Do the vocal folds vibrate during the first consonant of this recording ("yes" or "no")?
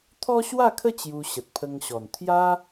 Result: no